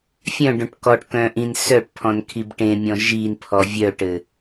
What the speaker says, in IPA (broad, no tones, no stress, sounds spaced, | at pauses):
fʲ œ̃ ɖ õ ʈ k ɔ ʈ k œ̃ ʔ ĩ n s œ ʈ pʰ ɔ̃ n kʰ i b ʈ ẽ mʲ ɔ̃ ʒ i n pʰ ɔ vʲ œ ʈ ɘ